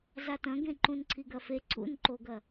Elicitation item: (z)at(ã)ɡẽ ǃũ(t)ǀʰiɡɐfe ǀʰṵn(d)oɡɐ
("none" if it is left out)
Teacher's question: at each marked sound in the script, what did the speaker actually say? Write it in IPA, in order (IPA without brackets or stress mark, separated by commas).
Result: z, ɐ̃, n, ǃ